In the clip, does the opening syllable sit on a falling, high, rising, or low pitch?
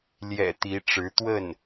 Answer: low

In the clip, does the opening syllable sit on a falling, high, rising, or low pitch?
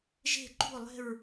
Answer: falling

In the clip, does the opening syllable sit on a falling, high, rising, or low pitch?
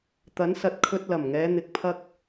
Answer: rising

